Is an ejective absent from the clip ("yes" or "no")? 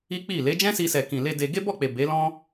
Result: yes